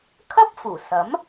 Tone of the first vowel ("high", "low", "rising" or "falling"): high